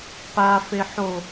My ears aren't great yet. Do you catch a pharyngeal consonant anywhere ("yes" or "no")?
yes